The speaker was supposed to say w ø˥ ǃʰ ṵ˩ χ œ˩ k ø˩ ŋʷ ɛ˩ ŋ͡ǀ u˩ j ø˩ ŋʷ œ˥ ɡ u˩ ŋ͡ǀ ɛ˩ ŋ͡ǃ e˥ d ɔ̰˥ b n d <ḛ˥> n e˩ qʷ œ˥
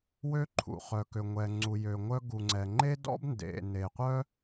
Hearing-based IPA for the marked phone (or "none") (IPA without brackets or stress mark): ḛ˩